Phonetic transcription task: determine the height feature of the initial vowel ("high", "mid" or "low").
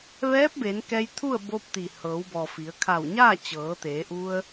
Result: mid